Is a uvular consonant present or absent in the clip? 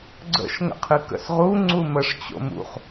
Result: present